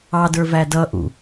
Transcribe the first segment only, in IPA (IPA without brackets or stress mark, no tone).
ɑ